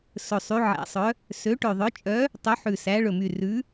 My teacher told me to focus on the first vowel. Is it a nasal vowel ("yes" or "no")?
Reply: no